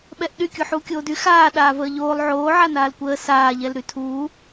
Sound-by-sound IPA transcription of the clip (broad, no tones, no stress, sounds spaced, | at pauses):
ɓ ɛ ʔ ɗ y kʲ u ħ uː kʲ oː d y x aː ɗ aː v əː ʎ oː lˠ ʕ oː ʕ a n aː l kʷ əː s aː ʎ ɛ l ɾ y tʰ uː